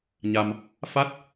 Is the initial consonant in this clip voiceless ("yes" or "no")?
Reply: no